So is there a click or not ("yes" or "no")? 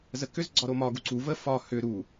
yes